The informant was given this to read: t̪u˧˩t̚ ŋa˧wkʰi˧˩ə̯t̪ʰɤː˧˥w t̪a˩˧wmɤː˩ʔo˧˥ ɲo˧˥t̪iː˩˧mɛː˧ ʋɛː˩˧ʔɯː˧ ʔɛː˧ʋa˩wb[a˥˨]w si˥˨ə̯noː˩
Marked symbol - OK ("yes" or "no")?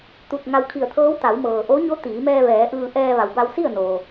no